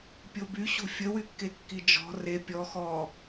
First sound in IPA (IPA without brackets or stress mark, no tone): pʲ